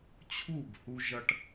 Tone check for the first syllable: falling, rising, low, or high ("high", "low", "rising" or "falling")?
falling